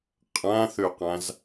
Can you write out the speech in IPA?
qʼ ã θ ø q ã z

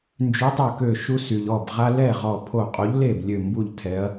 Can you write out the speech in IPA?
n d͡ʒ y˨˥ tˤ œ˧˩ k ø˧˩ ʃ u˦ s y˩ ʎ ɔ˥˩ b ʁ a˦ l ɛ˥˩ ʁ ɔ˧˩ pʰ o˧˩ qʼ u˨˥ ʎ l e˥˩ b lʲ ø˧˩ m b u˧˩ ʎ tʰ ɛ˩˧ ɐ̯

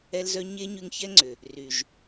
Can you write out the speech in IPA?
ɛ˧ l z œ˧ ɲ e˦ ɲ y˧ ŋ ç ɛ˦ ŋ͡ǀ ʏ˨ | r y˨ ʒ

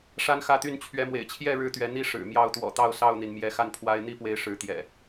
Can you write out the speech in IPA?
ʂ a˦ n x ä˥˨ t̪ y˥˨ n t͡ɕʰ ɥ ɛ˨˦ m w ḛ˨˩ ɪ̯ t͡ɕʰ j ɛ˥˨ ɻ ɻ̩˦ t̪ ɥ ɛ˨˦ n̪ i˦ ʂ ɻ̩˨˩ m j ɑ˦ ʊ̯ t̪ w ɔ̰˨˩ t̪ ɑ˥˨ ʊ̯ s ɑ˥˨ ʊ̯ n̪ i˩ n m j ɛ˨˦ x a˥˨ n pʰ w a˦ ɪ̯ n̪ i˥˨ p w e˨˦ ɪ̯ ʂ ɻ̩˨˦ t̪ j ɛ̰˨˩

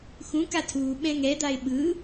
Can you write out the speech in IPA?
x ũ k a tʰ uː ɓ ɛ̃ ŋ ɛ d̪ a ɪ̯ ɓ ɯ

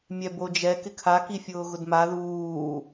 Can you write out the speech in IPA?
mʲ ɛ b o d͡ʒ ɛ k ɪ kʰ a k i fʲ ʊː ɣ ʊ d m a ð uː

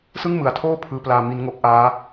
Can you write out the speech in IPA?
s ɯ˥˩ ŋ m ɯ˩˦ a̯ tʰ oː˥˩ pʰ ɯː˦˥ p l aː˧ m i˦˥ n ŋ o˦˥ k̚ ʔ aː˦˥

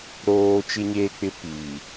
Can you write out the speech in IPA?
ɾ oː˦ t͡ʃ ɪ˦ ɲ eː˦ k͡p ɪ˦ p iː˨

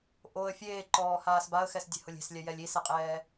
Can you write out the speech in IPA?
ʔ o ə̯ fʲ eː ǃ ɔː h aː s b a ə̯ x ɛ s dʲ e̤ h ʊ lʲ e̤ s lʲ ɛ j ɛ lʲ i s ɛ qʼ ɛː

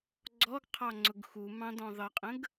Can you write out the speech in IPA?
ɡ͡ǀ ɔ ɡ qʰ ɑ ŋ͡ǀ ʊ ɡ x u m ɑ̃ d ɔ̃ ðˤ ə qʼ ə̃ ɡ

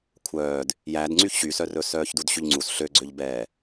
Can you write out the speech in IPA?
kʷʰ œː d | j æ d ŋ͡ǀ y ç ɕ y s œ r ɵ s œː ç d u d ɕ y ʎ ŋ͡ǀ u s ɬ ø ɡ͡ǀ ø ʎ b ɛː

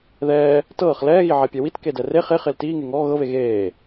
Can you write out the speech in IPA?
ð ɛː | t ɤː χ l ɛː ɣ i ʕ a pʲ e w i t k e d ɛ r e χ e χ e l t iː ŋ e ŋ ɔː ɣ ɤ β e ɣ eː

